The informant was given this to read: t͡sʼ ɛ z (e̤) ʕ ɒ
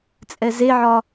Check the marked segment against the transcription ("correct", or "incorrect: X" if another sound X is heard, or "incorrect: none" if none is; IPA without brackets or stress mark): incorrect: e